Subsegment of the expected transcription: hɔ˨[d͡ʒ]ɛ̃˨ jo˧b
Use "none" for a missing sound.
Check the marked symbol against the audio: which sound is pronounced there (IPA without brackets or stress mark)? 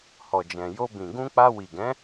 d͡ʒ